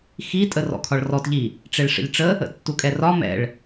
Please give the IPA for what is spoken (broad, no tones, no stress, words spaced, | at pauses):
xitʼə rɔ̰kʰɒɭrɔtʎi | ʈ͡ʂeɭʂə̰ʎʈ͡ʂə | ə̰tːukʼɛrɒ mɛ̰ɭ